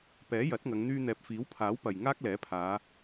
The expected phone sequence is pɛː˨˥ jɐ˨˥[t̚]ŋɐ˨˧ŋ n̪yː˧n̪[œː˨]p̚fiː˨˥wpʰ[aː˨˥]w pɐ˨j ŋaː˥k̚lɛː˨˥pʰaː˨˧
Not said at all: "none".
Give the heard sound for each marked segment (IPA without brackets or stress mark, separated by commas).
t̚, ɛː˨, aː˨˥